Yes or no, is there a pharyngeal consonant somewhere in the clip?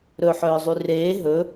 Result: yes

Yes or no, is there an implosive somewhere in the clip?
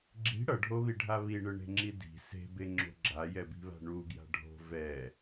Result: no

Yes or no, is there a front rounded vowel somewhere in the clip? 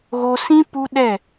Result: no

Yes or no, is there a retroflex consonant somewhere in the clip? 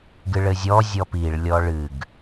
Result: yes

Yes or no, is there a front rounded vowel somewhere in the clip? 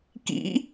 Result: no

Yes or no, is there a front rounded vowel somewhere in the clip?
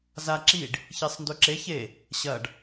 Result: no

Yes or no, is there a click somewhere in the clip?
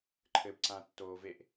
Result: yes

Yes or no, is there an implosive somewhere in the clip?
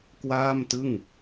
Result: no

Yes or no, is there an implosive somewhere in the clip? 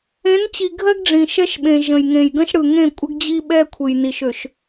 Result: yes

